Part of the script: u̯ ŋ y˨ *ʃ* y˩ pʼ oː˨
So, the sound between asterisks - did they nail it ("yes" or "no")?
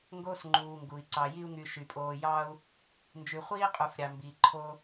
yes